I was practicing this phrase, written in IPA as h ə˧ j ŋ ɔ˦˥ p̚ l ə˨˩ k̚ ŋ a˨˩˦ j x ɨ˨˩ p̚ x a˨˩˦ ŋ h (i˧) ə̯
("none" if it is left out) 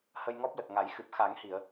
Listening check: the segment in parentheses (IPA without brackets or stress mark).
i˨˩˨